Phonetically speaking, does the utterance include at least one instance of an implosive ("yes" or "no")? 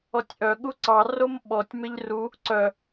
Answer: yes